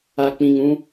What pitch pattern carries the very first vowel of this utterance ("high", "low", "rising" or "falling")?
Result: low